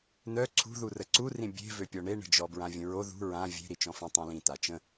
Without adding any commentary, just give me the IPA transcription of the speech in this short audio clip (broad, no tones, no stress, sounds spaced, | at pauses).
n œ ǀʰ ṳ ð u r ə ǀ u r ĩ bʲ e̤ v ø pʲ ɔ ɳ e ɳ ə̤ d͡ʒ ɔ b ɹ ã vʲ ə̃ ɹ o ð ṳ ɹ ã vʲ e̤ ɾ i t͡ʃ ɔ̃ f ĩ tˤ õ l ĩ t a t͡ʃ ə̃